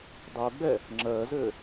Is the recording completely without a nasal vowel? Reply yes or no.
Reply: yes